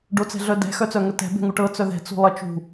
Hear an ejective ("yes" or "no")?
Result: no